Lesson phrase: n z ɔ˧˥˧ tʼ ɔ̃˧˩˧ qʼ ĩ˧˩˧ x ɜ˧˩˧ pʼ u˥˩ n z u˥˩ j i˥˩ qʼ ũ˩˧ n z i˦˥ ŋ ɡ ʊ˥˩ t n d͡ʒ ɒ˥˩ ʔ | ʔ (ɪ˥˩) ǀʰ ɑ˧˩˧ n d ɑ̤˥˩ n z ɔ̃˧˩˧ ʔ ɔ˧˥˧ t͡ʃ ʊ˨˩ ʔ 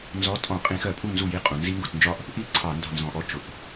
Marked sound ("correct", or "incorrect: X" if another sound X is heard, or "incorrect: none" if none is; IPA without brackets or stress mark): incorrect: i˥˩